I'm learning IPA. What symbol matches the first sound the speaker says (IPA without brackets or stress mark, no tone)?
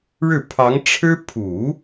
ɻ